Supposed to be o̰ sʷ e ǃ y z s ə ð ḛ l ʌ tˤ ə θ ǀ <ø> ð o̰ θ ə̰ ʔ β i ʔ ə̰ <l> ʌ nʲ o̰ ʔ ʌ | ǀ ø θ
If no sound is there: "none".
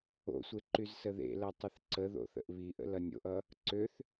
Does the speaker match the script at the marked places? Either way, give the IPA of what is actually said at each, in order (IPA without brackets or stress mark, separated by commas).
ə, l